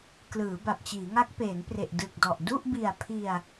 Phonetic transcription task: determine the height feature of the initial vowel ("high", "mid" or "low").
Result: high